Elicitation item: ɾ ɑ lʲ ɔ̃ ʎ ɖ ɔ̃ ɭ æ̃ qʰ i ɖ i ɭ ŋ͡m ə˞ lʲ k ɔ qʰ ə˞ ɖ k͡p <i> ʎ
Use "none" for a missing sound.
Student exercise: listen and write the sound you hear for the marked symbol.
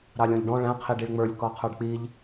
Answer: i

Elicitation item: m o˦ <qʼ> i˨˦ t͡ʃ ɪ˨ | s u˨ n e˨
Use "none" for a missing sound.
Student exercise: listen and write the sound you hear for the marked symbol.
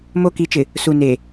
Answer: k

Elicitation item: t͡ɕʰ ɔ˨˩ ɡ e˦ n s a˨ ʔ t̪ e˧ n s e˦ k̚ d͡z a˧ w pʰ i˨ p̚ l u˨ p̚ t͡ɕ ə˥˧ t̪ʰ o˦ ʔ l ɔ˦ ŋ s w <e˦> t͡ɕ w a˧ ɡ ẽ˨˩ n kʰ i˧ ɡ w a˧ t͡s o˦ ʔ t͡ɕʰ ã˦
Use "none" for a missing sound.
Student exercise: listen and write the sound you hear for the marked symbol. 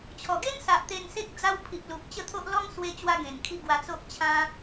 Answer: e˧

